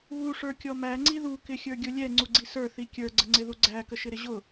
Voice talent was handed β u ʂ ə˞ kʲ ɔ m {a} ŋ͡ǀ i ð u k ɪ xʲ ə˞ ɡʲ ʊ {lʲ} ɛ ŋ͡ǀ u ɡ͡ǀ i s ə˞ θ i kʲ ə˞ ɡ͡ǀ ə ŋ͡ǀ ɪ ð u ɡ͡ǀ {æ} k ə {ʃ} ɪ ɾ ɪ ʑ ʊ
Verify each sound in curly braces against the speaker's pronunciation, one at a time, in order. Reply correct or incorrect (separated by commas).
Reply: incorrect, correct, correct, correct